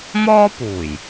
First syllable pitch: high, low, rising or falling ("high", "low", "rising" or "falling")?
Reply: high